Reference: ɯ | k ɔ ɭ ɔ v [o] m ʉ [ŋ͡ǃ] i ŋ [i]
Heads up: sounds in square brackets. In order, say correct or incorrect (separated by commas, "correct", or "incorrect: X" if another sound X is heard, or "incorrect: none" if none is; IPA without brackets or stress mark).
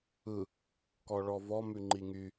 incorrect: ɔ, correct, incorrect: y